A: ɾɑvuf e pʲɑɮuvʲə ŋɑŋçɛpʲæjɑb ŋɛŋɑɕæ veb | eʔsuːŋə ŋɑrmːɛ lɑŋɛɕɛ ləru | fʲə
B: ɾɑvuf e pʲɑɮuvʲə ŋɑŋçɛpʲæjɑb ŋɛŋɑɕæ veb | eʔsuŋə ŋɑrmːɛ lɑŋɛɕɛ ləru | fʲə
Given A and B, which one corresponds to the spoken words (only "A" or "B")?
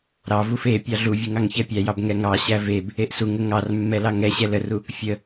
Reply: B